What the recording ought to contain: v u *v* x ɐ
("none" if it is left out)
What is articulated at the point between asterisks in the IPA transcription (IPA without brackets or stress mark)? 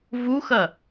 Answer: none